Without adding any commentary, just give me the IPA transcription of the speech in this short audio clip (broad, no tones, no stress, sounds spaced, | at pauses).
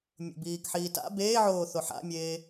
mʲ o̰ b iː k ħ iː t a̰ b eː ʕ oː θ o ħ a̰ mʲ eː